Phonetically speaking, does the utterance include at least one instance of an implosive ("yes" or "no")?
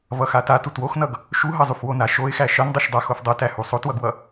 no